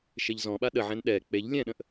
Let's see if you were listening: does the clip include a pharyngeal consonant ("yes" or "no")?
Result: yes